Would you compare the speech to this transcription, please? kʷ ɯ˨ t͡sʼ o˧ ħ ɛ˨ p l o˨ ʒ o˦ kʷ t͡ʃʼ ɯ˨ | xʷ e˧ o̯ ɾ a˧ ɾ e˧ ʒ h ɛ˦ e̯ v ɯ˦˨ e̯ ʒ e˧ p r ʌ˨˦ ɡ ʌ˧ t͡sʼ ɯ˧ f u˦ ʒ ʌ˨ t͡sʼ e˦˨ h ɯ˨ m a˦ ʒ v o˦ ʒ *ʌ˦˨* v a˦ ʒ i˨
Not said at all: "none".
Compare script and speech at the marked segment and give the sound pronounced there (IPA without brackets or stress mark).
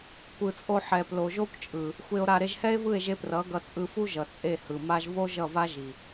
ʌ˦˨